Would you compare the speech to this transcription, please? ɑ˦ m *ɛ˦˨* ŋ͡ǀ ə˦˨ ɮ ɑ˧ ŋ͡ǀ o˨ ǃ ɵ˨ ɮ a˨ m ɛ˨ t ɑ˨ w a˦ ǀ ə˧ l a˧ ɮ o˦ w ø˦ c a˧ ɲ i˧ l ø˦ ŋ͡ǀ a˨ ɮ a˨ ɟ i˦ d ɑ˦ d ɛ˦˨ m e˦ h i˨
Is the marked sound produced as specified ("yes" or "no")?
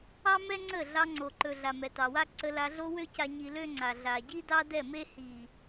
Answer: no